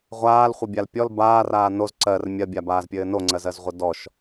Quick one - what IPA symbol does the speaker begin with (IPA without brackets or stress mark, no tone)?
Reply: ʁʷ